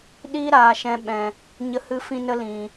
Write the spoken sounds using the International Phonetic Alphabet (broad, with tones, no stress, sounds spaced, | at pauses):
ɗ iː˦ ɾ aː˨ ʃ ɛ̃˨˦ ɓ ɛ̃˨ | ɲ ə˧ h ɨ˧ f ĩ˧ n ə˦ l ĩ˨